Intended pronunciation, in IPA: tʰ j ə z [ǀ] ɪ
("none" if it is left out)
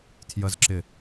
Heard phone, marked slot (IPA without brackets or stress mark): ǁ